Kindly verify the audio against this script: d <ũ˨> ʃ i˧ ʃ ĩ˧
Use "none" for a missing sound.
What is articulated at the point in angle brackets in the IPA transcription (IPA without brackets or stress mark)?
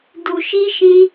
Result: u˨